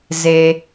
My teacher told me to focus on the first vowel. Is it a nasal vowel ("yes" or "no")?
no